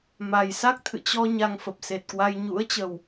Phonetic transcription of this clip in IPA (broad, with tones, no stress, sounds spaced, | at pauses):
m a˨˩ j s a˦˥ k̚ t̪ʰ ɨ̰˧˨ t͡ɕ ɔ˧ ɲ a˧ ŋ f ə˨˩ p̚ s e˨˩ t̚ k w a˧ j ɲ ṵ˧˥ ə̯ t͡ɕ ə˨˩ w